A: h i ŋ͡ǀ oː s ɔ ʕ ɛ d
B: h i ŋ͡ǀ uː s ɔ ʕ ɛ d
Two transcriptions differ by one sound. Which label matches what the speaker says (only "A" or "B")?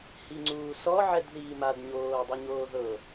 B